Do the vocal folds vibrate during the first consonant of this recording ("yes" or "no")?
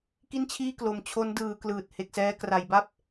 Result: no